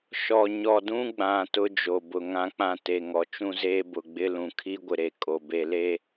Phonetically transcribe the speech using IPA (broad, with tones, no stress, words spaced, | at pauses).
ʃɔ˨ ɲɔ˨dũ˦ ɡ͡bã˨ tʊ˦d͡ʒo˨bʊ˨ ŋã˨k͡pã˨ te˨ŋɔ˨t͡ʃũ˦zeː˦ bʊ˨ɡ͡bɪ˦lũ˨ kʰi˦ɡʷɪ˨ɾe˨ kʼo˨ be˨le˦